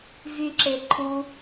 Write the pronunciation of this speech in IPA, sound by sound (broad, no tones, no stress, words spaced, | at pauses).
vyǁe ǃʰu